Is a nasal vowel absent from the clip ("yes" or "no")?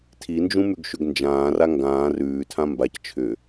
no